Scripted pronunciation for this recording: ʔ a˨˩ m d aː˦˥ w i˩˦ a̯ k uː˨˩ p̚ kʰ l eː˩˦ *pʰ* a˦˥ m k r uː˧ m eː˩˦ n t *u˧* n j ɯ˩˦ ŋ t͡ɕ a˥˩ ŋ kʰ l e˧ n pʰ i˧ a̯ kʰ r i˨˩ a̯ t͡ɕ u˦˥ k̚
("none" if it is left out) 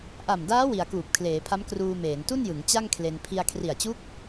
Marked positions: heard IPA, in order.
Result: pʰ, u˥˩

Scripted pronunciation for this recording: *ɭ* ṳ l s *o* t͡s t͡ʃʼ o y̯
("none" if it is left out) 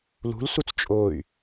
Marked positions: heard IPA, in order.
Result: l, u

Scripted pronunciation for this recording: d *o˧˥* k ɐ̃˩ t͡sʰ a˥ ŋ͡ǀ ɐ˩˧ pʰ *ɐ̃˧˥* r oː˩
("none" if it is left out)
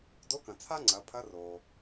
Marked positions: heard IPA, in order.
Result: o˧˥, ɐ˧˥

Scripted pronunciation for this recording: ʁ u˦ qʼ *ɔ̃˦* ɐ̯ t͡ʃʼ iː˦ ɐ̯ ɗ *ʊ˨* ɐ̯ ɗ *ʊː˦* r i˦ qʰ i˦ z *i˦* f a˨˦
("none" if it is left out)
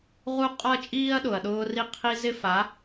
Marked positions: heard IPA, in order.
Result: ɔ˦, ʊ˨, ʊː˦, ɪ˦

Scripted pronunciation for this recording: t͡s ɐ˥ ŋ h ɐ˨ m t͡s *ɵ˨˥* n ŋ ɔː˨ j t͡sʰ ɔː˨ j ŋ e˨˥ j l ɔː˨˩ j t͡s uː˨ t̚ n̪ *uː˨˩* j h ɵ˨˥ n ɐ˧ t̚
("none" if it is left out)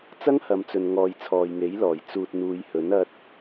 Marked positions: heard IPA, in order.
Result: ɵ˨, uː˨˧

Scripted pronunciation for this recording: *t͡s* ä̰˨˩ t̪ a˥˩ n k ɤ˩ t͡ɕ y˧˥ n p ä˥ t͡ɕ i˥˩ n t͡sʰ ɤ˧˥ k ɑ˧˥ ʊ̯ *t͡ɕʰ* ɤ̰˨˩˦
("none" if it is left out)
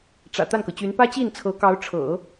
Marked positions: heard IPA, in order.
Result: ʈ͡ʂ, ʈ͡ʂʰ

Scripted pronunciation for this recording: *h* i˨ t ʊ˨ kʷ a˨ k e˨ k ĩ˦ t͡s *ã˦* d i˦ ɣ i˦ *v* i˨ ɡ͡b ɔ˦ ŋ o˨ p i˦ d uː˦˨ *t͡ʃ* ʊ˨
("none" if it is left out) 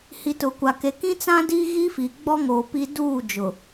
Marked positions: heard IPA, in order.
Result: h, ã˦, f, d͡ʒ

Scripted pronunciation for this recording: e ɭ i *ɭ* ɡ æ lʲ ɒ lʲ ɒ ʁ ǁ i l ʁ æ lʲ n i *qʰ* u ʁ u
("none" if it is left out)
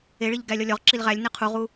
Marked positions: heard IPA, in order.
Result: ʎ, qʰ

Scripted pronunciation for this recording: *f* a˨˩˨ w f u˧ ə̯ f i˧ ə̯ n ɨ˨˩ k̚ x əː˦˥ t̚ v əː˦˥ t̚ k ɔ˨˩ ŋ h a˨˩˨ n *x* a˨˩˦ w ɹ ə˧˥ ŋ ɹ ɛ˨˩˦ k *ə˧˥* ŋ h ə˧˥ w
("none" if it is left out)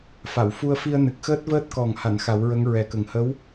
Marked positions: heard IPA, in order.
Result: f, x, ə˨˩

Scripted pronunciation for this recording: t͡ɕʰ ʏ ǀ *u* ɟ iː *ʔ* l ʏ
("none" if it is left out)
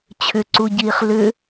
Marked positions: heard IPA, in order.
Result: u, χ

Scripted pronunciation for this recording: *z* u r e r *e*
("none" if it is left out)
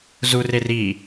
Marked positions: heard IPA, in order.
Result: z, i

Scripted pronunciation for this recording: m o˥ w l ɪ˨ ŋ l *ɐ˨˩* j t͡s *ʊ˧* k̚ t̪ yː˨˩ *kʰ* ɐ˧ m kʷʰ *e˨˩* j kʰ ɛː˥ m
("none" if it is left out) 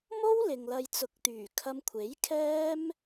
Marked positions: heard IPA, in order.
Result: ɐ˧, ʊ˨, kʰ, e˨˥

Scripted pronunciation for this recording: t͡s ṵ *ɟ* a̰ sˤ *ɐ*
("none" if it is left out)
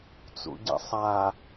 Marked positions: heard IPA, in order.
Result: ɟ, a

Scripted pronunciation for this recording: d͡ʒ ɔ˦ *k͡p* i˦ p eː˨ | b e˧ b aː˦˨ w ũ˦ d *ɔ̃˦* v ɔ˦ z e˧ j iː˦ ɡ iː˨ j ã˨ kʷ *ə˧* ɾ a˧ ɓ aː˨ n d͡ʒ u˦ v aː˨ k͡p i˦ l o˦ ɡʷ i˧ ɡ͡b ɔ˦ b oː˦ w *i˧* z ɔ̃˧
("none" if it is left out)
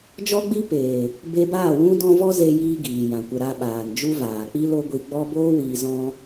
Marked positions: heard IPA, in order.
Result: ɡ͡b, ɔ̃˦, ə˧, iː˧

